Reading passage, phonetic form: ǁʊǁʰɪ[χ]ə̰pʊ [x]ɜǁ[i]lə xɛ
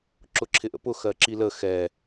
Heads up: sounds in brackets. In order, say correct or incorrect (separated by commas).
incorrect, correct, correct